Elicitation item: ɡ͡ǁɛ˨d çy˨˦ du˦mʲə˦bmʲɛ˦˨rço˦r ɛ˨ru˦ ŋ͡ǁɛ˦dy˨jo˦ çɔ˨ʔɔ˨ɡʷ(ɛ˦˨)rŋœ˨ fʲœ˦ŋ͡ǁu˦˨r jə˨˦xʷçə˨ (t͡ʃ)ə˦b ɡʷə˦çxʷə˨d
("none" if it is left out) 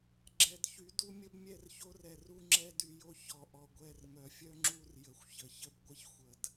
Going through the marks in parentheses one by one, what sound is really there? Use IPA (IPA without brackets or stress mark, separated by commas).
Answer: ɛ˦˨, ç